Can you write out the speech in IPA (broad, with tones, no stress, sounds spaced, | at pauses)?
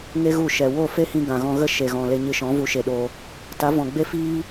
ŋ e˦ ɣ u˦˨ ʃ ɛ˨ w o˦˨ f e˦ h ĩ˧ ɡ ã˨ ɣ ɔ̃˧ ɣ ə˦ ʃ e˨ ɣ ɔ̃˨ l e˧ ɲ ɨ˧ ʃ ɔ̃˨˦ v u˨˦ ʃ e˨ ɗ o˧ | t a˨˦ v ɔ̃˨ ɡ͡b e˦ f iː˦